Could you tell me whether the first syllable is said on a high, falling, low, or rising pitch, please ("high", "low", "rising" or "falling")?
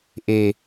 low